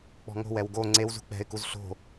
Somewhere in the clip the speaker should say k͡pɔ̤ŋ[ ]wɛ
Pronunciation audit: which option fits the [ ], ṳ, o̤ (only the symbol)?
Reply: o̤